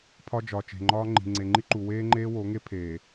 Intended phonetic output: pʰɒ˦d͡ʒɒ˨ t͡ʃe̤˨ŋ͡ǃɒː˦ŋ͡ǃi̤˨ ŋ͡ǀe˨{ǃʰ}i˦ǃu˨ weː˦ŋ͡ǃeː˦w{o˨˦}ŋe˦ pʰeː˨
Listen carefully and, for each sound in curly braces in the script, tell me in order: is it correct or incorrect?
incorrect: ŋ͡ǃ, correct

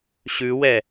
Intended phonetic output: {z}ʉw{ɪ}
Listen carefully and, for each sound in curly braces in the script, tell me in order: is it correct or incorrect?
incorrect: ɕ, incorrect: ɛ

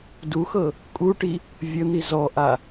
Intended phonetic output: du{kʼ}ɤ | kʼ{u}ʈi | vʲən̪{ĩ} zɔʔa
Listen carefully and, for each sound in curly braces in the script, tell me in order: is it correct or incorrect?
incorrect: x, correct, incorrect: i

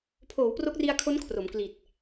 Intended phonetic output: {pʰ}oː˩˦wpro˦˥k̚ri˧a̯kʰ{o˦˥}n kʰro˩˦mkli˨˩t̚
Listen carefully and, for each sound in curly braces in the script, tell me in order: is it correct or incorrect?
correct, correct

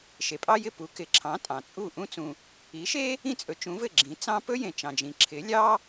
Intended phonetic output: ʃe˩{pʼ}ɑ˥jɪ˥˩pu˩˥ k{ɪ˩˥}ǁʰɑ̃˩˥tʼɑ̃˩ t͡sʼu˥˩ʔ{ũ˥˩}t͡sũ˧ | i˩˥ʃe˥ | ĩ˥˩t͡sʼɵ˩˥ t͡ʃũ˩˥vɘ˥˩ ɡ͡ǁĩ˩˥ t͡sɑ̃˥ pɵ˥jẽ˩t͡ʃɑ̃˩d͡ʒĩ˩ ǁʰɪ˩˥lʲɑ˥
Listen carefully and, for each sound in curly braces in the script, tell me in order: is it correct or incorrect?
correct, correct, incorrect: ũ˥

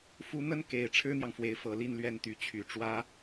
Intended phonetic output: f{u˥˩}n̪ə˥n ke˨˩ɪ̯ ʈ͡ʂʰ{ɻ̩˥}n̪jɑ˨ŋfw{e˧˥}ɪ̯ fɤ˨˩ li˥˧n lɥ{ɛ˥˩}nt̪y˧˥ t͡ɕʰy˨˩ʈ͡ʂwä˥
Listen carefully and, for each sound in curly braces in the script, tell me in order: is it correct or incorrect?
incorrect: u˧˥, correct, correct, correct

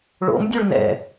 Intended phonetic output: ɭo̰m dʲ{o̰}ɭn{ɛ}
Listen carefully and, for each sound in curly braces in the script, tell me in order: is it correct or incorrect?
incorrect: o, incorrect: ɛ̰

